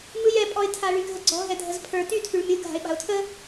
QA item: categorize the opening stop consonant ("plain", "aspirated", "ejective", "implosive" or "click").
ejective